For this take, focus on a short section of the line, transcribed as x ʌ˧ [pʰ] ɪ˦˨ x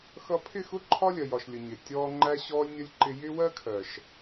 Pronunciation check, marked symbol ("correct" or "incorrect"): correct